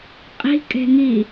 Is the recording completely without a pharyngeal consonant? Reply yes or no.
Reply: yes